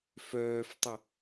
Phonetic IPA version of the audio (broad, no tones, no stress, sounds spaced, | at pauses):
f œː f tˤ ɪ